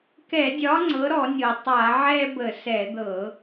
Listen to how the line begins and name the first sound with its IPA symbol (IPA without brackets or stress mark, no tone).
k